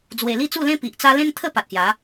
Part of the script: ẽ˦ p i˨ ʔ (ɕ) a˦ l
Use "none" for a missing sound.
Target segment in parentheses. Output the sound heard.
t͡s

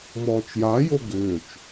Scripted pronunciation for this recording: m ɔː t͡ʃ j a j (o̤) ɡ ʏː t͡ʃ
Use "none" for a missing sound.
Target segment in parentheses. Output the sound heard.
o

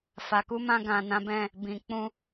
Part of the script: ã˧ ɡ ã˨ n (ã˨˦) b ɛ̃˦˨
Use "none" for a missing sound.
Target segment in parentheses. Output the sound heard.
ã˨˦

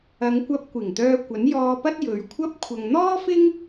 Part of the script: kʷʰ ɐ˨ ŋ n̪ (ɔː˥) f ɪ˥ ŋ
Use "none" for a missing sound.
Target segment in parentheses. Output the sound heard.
ɔː˥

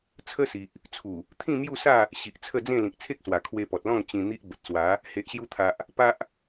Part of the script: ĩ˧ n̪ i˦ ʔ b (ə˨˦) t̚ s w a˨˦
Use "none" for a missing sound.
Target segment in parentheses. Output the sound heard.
ə˨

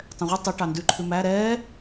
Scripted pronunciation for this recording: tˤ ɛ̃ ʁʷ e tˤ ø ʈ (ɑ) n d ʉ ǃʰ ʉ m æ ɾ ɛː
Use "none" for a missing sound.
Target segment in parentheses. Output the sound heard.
ɑ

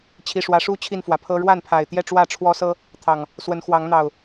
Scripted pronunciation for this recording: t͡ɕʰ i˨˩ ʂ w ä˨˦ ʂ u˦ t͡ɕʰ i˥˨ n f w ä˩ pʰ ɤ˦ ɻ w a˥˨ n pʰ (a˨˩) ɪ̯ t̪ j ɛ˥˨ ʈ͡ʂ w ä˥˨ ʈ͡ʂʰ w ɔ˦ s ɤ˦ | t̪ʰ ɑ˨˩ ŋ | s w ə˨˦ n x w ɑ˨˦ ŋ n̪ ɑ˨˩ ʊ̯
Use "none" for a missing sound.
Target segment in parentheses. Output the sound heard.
a˨˩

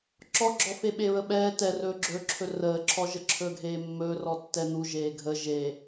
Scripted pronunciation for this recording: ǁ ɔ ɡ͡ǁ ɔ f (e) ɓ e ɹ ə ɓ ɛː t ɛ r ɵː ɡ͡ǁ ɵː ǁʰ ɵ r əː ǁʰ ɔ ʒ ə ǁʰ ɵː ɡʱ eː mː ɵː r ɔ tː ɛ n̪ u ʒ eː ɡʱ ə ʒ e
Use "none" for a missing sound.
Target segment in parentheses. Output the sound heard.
e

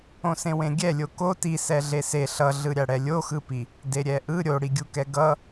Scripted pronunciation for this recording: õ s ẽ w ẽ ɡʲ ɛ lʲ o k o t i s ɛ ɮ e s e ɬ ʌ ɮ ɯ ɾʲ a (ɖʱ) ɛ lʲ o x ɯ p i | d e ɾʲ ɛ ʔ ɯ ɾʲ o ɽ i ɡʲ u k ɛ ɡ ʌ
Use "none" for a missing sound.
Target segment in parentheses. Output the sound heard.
ɽ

